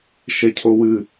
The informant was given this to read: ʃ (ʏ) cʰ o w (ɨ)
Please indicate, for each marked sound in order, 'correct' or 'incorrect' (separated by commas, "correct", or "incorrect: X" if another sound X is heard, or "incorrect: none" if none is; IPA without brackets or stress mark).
incorrect: ɛ, correct